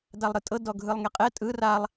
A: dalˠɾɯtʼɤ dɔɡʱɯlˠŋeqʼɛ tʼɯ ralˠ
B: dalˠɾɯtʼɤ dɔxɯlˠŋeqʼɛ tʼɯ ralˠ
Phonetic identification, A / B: A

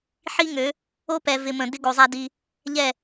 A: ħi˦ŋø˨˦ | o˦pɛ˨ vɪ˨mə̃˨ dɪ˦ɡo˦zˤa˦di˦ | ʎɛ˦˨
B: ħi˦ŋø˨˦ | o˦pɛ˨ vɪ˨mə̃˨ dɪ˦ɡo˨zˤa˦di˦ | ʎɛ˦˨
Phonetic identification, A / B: B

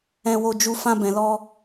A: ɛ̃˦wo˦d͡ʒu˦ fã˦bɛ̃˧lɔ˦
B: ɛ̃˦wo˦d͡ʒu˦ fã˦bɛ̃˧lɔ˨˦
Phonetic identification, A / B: A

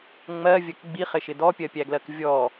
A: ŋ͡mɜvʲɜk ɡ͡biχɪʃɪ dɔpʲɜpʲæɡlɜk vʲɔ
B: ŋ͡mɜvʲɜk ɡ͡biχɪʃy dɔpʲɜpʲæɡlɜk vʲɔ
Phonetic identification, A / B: A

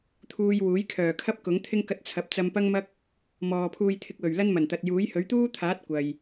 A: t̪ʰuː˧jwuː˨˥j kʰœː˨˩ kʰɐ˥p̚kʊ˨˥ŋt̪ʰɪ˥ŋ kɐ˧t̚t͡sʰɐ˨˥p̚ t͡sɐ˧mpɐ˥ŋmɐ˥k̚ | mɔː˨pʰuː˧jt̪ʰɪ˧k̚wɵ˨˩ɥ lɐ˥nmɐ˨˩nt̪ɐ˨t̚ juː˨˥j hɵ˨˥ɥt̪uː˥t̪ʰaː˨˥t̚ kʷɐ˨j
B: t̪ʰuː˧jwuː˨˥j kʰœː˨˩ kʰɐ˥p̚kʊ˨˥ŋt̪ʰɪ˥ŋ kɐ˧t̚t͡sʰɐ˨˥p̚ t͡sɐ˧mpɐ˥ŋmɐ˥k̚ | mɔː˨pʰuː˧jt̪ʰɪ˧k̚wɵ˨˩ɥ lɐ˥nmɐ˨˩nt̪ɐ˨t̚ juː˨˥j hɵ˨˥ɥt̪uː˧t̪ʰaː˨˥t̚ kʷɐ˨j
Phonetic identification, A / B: A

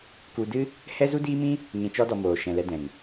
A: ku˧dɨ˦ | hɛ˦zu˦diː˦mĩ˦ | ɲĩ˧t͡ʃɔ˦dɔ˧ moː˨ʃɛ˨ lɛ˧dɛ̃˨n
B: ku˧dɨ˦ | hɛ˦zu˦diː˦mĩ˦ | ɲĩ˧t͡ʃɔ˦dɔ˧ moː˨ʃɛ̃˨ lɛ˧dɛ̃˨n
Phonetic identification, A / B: B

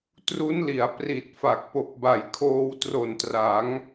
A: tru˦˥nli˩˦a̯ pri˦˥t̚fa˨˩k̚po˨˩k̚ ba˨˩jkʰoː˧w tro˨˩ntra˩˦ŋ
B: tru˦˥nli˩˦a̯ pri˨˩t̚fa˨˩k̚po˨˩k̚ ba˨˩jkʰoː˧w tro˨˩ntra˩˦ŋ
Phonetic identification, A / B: B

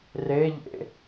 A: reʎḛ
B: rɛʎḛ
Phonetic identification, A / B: A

